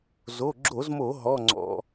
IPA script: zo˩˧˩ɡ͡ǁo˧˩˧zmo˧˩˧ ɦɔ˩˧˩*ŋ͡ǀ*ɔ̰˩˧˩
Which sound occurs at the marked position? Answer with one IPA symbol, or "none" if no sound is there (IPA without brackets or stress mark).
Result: ŋ͡ǀ